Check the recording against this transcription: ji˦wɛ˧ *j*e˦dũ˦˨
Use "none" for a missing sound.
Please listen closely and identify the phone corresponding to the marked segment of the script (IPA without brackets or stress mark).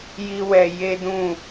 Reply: j